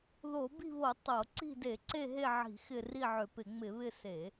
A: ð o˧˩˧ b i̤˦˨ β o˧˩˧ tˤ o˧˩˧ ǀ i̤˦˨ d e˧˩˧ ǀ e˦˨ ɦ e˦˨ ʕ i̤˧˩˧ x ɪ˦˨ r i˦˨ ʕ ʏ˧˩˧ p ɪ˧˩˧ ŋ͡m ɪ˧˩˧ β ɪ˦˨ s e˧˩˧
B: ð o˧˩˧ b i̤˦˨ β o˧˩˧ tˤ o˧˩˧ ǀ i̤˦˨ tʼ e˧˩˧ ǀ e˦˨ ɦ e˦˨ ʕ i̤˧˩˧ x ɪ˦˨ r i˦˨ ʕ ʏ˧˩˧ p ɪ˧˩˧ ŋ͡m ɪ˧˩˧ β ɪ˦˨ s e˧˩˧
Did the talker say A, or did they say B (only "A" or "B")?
A